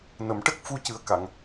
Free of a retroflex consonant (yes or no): no